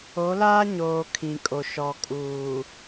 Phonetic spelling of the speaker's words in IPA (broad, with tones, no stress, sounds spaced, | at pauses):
o˨˦ l aː˦ ɲ oː˨ kʰ ĩ˨ kʼ o˨ ʃ ɔ˨ kʼ uː˨